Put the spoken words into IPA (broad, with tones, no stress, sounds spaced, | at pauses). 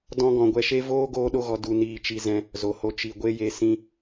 d ɔ̃˧ ɡ ɔ̃˨ ɡʷ ɛ˧ ʃ e˦ v oː˧ ɡ oː˦ ɗ o˦ ɣ ɔ˧ d u˧ n iː˧ t͡ʃ i˧ z ɛ̃˧ | z o˨ h o˧ t͡ʃ i˨ ɡʷ e˧ j e˨ s ĩ˦